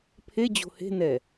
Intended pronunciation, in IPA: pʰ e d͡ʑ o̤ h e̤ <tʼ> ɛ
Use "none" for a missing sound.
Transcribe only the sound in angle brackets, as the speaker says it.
n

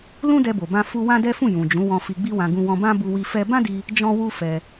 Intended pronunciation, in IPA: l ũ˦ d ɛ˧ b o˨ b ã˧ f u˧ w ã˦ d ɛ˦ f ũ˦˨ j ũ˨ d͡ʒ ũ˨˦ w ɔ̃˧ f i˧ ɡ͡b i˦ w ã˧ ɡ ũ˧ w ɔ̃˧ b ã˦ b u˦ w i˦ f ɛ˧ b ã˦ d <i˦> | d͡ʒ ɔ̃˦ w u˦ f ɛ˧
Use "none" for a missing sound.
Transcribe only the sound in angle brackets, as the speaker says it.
i˧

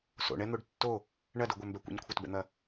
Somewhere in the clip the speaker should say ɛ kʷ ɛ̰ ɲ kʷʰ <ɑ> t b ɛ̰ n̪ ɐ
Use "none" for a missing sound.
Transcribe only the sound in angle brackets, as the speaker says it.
ɐ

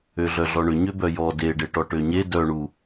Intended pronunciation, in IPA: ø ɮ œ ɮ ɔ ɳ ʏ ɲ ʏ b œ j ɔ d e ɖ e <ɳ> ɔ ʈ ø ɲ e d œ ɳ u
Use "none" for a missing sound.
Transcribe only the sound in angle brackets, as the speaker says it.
ʈ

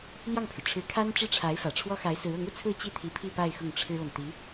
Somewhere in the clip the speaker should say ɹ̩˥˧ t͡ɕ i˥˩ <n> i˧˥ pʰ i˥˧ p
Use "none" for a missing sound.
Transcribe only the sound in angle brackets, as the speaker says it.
t̪ʰ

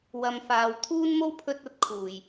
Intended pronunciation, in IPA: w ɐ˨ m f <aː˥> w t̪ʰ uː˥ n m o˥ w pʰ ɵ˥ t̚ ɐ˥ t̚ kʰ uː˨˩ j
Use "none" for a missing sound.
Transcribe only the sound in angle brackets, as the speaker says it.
aː˨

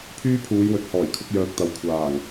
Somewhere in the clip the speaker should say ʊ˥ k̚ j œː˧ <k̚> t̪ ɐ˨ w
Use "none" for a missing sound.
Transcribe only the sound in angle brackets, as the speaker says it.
k̚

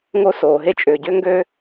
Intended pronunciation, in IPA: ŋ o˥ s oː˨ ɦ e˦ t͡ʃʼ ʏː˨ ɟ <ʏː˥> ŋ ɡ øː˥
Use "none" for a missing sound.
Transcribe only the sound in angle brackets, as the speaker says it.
ʏː˥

